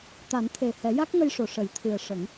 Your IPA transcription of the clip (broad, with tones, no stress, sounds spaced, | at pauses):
t̪ a˨˩˦ n t̪ʰ e˨˩ h ɛ˨˩˦ j a˦˥ k̚ ŋ ə˧ j ʂ o˨˩˨ ʂ ə˨˩˦ j t̪ʰ ɨ˨˩ ə̯ ʂ ə˨˩˦ ŋ